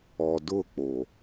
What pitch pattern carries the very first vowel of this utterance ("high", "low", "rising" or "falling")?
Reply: low